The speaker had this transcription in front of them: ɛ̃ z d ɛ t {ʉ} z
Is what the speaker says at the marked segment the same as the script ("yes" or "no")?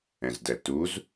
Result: no